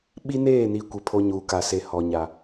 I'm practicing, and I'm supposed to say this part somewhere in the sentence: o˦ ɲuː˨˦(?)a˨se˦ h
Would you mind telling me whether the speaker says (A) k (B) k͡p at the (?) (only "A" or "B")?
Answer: A